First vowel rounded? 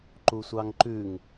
yes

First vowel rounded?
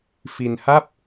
no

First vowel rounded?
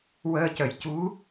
no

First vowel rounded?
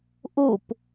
yes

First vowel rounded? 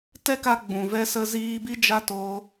no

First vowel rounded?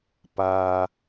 no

